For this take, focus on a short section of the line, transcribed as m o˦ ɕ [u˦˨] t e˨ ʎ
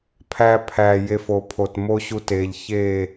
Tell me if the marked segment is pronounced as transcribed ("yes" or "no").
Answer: no